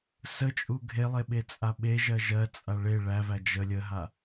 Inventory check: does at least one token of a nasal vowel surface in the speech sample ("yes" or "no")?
no